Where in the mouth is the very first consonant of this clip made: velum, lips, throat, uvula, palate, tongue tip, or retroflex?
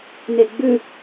tongue tip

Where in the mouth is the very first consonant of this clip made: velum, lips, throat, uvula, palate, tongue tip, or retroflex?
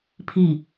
lips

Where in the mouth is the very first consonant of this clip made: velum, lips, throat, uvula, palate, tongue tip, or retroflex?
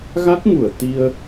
velum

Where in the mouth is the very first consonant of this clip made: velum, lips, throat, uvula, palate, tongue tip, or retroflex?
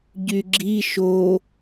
palate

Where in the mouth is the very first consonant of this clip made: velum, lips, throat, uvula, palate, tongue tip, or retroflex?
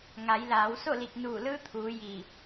velum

